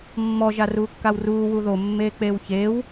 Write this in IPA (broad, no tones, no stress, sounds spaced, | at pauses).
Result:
mː ɔ ʒ a r uː kː a w r uː w u ð o mː eː k͡p eː w ç eː w